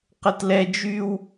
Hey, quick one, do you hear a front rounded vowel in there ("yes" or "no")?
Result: yes